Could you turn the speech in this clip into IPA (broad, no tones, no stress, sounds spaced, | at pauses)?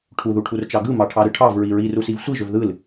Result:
ʈʰ u ð u ʈʰ u r t͡ʃ ɑ ɡ ɯ m ɑ ʈʰ ɑ ɾ ɯ ʈʰ ɑ v ɹ i ɹ i r u s i v sʷ i ʒ ø v ð ɯ l